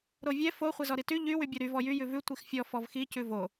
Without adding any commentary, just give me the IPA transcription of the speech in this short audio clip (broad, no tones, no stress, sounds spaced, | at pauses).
ɾ o vʲ ɛ f o χʷ ɛ z ɔ ɾ i t y ʎ y w y bʲ o ɾ y v ɔ j y j ʉ v ʉ tʷ i x fʲ ɔ f ɔ v x i c ʉ v o